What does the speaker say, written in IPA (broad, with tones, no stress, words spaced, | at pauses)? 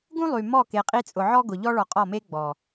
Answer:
ɡũ˦ lˠy˨ mɔ˦˨ke˨qʼi˦t͡sʼʊ˨ ʕɔ˦ɡʊ˨ʎɔ˦ ɭɔ˨qʼɔ˦˨me˦ ɡ͡bɔ˨